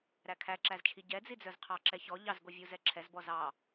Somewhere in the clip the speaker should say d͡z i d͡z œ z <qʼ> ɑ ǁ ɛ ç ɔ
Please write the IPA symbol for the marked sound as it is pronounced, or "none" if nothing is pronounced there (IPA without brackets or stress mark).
qʰ